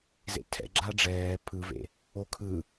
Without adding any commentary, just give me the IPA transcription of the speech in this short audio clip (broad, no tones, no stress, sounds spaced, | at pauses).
z ḛ tʰ ɛ̰ ɡ͡ǁ a ɖ͡ʐ ɛː pʰ ɯ v ḛ | o kʰ ɯ